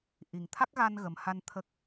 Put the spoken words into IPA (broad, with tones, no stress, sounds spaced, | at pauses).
ʔ i˨˩ ŋ t̪ʰ a˦˥ k̚ ɣ a˧ n ɣ ə˨˩ m h a˧ n t̪ʰ ə˦˥ k̚